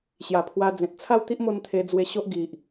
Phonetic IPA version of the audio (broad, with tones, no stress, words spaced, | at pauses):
ɕja˨˩pʰwa˧d͡zẽ˨t̚ t͡sʰa˥˧wt̪i˦ʔmo˧n t̪ʰe˧d͡zwe˧ɕo˦ʔ ɡi˨ʔ